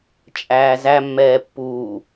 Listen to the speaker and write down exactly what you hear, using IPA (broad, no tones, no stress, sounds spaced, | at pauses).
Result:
t͡ʃʼ æː z æ mː ɛː pː uː